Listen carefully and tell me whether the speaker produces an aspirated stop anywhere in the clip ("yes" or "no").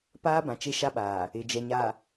no